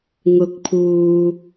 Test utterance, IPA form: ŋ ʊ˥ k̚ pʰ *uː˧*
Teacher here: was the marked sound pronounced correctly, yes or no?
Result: yes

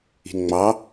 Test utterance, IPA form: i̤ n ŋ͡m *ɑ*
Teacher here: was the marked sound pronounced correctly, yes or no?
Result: yes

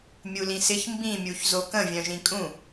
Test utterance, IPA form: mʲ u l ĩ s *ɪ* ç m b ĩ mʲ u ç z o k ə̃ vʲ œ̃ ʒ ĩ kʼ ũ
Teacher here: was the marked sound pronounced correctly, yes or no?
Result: yes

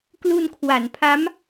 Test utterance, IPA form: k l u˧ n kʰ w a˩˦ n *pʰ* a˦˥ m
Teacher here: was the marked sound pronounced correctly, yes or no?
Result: yes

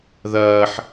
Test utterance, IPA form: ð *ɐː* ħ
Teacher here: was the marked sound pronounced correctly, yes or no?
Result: yes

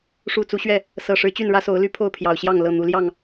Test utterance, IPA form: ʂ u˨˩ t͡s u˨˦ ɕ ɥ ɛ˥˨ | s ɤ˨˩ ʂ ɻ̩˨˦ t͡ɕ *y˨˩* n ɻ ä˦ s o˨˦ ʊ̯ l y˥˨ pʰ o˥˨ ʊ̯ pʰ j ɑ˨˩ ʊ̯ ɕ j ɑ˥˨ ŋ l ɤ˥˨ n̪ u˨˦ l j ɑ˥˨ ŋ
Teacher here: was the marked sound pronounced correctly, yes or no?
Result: no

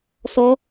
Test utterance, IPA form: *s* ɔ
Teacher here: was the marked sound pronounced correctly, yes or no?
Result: yes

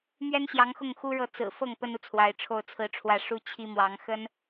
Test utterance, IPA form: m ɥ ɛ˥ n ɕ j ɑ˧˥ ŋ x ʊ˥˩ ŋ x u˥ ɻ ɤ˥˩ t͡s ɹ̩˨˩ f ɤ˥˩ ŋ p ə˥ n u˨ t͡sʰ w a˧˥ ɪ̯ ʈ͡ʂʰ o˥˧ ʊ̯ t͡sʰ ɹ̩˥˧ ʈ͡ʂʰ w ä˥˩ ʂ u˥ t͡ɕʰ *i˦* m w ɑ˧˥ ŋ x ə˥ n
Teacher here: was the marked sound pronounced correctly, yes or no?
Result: no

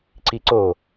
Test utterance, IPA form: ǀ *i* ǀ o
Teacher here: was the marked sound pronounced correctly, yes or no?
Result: yes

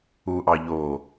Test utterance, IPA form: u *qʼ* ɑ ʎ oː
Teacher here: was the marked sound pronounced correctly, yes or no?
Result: no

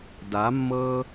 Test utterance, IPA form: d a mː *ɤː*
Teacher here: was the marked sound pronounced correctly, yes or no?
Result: yes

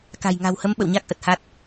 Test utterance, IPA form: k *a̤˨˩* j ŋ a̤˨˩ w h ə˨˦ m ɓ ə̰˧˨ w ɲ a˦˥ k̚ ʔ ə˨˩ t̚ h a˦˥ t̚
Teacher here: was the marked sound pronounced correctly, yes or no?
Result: yes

